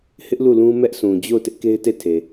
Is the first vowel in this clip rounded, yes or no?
no